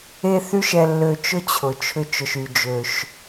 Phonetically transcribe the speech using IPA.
e˥ θ y˥ ʃ ɛ˧ lː ø˧ t͡ʃ ʊ˥ t͡ɕʰ ʊ˩ t͡ʃʰ ʏ˧ t͡ʃ ʊ˩ ʃ y˩ d͡ʒ ø˩ ʃ

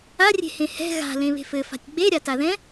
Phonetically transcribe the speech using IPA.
a rʲ e̤ h ẽ h ɛ̤ ɣ a̤ l ẽ β e̤ f ɘ f a̤ tʲ ɡ͡b e ɾʲ a t a ð ɛ̃

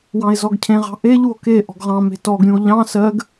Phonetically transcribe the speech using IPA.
w ɑ̃ e̯ z ɔ ɡ cʰ ẽ ʁ ɑ̤ ʔ e ʎ u o̯ k e ʔ ɔ̤ ɡ ʁ ɑ̃ m e̤ t ɔ ɡ ɾʲ ũ o̯ ʎ ɑ̃ s ɜ ɡ

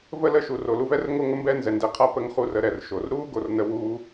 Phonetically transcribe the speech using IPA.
v ə˥ l ə˥ ʃ u˩ r o˩ l u˧ v ɛ˥ r ŋ o˥ ŋ ə˥ m b ɛ˥ n z ɛ˩ n d ɛ˧ qʰ a˥ p ə˥ ŋ χ u˧ r ə˧ ɾ ɛ˩ r ʃ o˩ r ɾ u˥ ɡ o˩ r n ə˥ w u˥

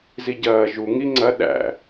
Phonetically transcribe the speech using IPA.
z i ɟ ɐː ʒ u ŋ i ŋ͡ǀ ɐ ɗ æ̰

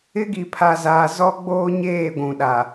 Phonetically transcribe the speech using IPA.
ɪ˦ ɡ i˨ pʰ a˨ z aː˨ z ɔ˦ ɡ͡b oː˦ ɲ eː˦˨ ɡʷ ũ˨ ɗ a˨

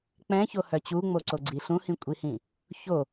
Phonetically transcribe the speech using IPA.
k͡p ɛ̃ ç o h œ t͡ɕ u ŋ͡m o ǀ o ɡ͡ǀ i ɬ ũ h ĩ kʷʼ i h ĩ | ç o

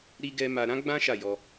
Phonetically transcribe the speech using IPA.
ɾ i˦ ɡ ɛ˧ m a˧ ɾ ã˦ ɡ͡b ã˦ ʃ a˦˨ j ɔ˧

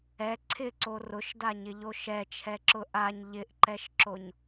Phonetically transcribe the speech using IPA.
ɛ ǀʰ ɪ ǀ o r ʊ ʃ d a ɲ ɪ ʎ o ʃ ɛ t͡ʃʰ ɛ ǁ ʊ ʔ a ɲ ʎ ɪ ʔ ǃ ɛ ʃ ǁ o ɲ

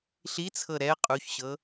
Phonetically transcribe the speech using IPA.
ɬ i t͡sʰ ɤ ɾ ɛ ə̯ qʼ u ç ɕ ɤ

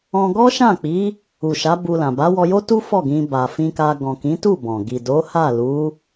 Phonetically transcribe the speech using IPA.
ɔ̃˧ ɡ ɔ˦ ʃ ã˦˨ k͡p i˨˦ | u˨ ʃ a˨˦ b u˧ l ã˨ b a˨˦ w ɔ˧ j o˦ t u˦ f ɔ˦˨ ɡ ĩ˧ b a˨ f ĩ˧ k a˧ ɡ ɔ̃˨ k ĩ˨˦ t u˦˨ b ɔ̃˨ ɡ i˨ d o˨˦ h a˦˨ l u˨˦

